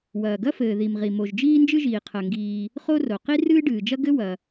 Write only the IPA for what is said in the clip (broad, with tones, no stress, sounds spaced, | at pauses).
w ɐː˩ ɡ ɐ˥ f ɘː˩ ð i˩ m ʁ i˩ m o˩ ʒ d͡ʒ iː˥ n d͡ʒ ɨ˥ ʒ iː˩ qʰ ɐ˩ ŋ ɡ iː˩ | χ o˥ r o˩ q i˥ r ɨː˥ ɖ ɨː˩ d͡ʒ ɐ˥ ɡ ɘ˥ w ɐ˩